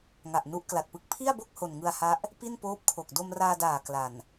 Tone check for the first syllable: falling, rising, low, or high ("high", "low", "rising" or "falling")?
low